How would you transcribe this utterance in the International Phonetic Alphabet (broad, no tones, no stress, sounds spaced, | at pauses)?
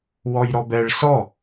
w ɔ j ɾ ɔ b ɛ ɭ s ɔ